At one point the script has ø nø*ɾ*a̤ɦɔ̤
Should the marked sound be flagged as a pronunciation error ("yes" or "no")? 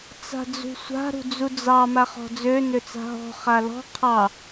yes